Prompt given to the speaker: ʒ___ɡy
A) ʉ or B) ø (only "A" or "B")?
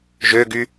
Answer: B